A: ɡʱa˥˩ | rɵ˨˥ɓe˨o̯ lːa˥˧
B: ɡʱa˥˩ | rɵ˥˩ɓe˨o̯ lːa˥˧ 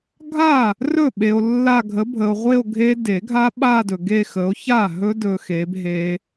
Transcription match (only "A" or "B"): B